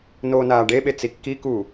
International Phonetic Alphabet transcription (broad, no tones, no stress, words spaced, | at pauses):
noːnaːɖeɓe t͡sikːiku